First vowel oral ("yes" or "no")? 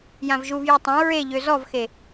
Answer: no